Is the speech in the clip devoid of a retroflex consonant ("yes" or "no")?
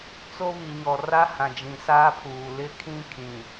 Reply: yes